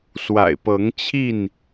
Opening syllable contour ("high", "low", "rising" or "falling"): low